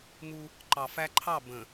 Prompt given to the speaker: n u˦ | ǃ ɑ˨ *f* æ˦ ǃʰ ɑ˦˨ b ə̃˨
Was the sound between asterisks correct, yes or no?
yes